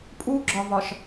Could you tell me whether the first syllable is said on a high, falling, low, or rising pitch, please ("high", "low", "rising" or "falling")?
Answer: high